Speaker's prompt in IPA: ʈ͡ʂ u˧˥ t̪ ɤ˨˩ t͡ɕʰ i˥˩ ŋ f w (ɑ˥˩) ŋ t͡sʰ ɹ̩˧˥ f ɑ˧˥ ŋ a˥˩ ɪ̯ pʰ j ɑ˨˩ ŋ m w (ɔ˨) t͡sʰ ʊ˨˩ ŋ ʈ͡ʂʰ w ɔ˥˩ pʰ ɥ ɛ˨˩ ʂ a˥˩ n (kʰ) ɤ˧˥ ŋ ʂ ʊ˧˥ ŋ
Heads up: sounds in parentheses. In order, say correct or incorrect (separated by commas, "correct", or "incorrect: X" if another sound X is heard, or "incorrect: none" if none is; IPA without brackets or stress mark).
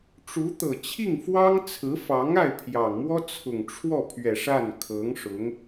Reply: incorrect: ɑ˥, incorrect: ɔ˥, correct